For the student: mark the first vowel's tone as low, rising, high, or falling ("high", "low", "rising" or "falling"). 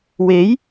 rising